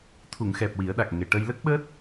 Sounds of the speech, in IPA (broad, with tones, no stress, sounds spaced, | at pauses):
t̪ʰ u˨˩˨ ŋ x ɛ˨˩ p̚ w i˨˩˦ ə̯ ɗ a˨˩ k̚ ŋ e˨˩ ʈ ə˧ j l ə˦˥ k̚ ɓ əː˦˥ t̚